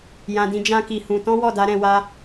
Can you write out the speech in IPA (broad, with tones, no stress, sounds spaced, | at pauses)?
j ã˧ d ĩ˧ d͡ʒ ã˦ k i˧ h ũ˧ t ɔ̃˦ w ɔ˦˨ d a˧ ɾ ɛ̃˧ w a˧